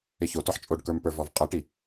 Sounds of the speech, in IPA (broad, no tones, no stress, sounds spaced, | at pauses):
ɪ ç o t ɔ ħ t͡ʃʼ o ɖ k ə˞ m p ə˞ v ɔ v qʼ ɤ ʈ i